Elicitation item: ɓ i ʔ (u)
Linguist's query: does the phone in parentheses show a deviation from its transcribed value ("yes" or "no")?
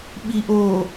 yes